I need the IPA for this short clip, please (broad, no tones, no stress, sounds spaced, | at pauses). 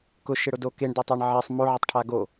k ʊ ʃ ɪ ɽ ʊ d o k e ɳ d e tˤ e ɳ ʕ e sˤ m o ʕ ɪ tˤ ʈʰ a ɡ o